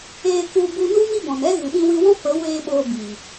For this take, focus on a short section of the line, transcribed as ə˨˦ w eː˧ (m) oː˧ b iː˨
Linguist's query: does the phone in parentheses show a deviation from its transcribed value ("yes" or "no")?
yes